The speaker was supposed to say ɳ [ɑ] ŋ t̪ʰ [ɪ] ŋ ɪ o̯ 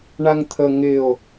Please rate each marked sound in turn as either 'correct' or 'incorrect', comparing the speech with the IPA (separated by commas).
incorrect, incorrect